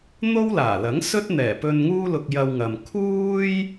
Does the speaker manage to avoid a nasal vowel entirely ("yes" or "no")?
yes